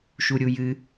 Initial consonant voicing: voiceless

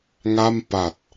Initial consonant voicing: voiced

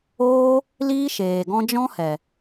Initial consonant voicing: voiced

